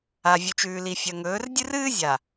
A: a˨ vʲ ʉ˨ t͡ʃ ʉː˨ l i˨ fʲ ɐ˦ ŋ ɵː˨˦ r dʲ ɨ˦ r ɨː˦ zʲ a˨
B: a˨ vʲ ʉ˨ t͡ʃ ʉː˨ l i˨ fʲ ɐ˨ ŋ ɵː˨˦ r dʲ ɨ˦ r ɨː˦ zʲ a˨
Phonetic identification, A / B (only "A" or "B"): B